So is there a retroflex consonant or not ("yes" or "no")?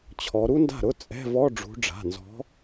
yes